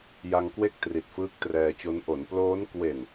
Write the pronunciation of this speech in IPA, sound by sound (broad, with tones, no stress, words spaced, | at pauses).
ja˧ŋkwe˥˩k̚ tri˨˩t̚fɯː˦˥k̚trɛː˧t͡ɕo˦˥n ʔo˩˦nploː˦˥n kwe˨˩n